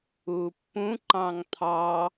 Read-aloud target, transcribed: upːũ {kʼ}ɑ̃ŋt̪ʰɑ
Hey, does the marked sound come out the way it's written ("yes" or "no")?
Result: no